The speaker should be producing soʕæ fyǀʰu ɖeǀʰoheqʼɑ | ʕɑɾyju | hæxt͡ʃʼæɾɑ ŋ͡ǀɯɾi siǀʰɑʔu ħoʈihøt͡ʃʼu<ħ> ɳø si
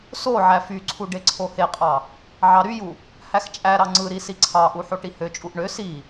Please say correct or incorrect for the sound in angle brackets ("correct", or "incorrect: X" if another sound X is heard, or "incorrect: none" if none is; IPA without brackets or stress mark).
incorrect: ʔ